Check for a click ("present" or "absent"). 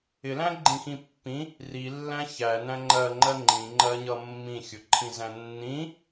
present